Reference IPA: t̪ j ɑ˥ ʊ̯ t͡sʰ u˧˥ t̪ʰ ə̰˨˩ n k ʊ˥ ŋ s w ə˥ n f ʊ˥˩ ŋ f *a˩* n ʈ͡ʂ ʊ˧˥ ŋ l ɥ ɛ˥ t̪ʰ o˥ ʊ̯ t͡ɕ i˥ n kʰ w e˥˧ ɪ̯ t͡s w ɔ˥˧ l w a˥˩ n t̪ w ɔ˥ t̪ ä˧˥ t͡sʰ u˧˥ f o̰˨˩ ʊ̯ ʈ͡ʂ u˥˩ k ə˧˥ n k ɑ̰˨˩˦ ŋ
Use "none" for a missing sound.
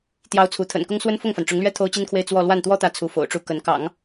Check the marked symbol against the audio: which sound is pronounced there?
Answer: a˩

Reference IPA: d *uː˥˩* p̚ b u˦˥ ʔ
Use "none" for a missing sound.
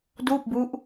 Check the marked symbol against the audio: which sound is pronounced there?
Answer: uː˥˩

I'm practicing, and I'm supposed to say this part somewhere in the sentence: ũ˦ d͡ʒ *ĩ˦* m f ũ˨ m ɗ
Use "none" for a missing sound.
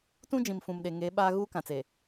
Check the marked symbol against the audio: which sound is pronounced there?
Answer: ĩ˨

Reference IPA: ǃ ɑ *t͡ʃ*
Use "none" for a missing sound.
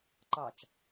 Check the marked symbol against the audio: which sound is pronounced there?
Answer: t͡ʃ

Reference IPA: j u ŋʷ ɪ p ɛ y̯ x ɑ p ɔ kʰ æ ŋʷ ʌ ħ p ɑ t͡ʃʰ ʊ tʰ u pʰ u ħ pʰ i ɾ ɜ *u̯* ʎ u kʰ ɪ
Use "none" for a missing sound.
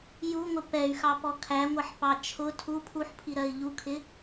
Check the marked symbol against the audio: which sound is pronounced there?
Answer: i̯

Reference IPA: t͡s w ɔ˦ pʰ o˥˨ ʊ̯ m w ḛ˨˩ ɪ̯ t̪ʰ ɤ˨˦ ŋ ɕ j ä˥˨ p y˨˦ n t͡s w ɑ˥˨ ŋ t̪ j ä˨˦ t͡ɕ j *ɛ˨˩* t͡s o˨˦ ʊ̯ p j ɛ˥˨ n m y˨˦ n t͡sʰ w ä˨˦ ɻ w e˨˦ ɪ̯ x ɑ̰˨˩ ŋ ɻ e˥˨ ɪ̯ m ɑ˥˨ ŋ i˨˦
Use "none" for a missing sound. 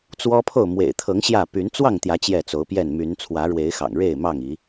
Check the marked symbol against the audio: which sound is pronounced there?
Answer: ɛ˥˨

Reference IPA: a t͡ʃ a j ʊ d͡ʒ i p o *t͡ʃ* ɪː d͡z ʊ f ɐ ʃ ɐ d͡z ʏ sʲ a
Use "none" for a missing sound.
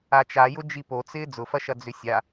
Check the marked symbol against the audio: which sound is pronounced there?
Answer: t͡s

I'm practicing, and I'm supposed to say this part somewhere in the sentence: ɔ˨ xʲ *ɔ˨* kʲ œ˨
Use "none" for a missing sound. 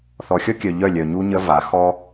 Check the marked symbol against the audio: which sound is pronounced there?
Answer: ɔ˦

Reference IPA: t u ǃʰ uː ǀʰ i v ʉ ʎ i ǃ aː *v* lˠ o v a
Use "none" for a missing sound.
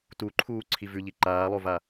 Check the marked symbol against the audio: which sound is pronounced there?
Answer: none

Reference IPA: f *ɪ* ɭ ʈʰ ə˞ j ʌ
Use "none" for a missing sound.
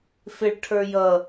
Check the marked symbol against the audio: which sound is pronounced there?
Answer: ɪ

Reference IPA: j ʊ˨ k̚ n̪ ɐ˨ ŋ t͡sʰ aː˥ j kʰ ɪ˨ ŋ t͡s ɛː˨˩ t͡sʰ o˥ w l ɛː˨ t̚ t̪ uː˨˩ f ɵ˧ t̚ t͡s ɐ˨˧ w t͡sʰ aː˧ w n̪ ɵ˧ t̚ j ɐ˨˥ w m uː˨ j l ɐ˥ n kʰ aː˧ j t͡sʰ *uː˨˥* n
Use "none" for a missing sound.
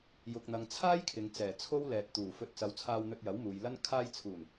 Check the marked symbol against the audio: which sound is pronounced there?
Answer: uː˨˩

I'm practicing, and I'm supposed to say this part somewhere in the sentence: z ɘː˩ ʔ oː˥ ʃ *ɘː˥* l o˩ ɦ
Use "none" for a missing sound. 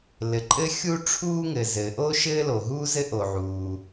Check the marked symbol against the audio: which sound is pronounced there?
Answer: ɘː˥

